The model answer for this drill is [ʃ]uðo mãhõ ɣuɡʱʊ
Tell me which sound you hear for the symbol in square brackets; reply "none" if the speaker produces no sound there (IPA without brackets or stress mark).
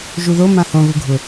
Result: ʒ